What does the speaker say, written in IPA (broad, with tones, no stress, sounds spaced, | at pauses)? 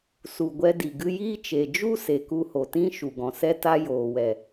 s u˨ ɡʷ ɛ˧ d i˨ ɡ ɨ˧ j iː˦ t͡ʃ e˨ d͡ʒ u˦ s e˨ k u˧ h o˨ t ĩ˦ ʃ u˨ ɡ ɔ̃˨ s ɛ˦ t a˧ j oː˨ w ɛ˨